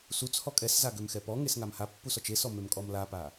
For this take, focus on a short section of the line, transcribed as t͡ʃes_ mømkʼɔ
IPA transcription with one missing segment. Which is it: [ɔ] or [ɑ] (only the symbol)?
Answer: ɔ